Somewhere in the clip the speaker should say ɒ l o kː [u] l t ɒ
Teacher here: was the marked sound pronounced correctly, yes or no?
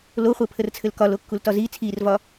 yes